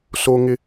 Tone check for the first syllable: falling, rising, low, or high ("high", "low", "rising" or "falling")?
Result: low